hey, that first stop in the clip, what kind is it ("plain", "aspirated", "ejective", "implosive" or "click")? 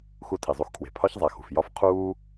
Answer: aspirated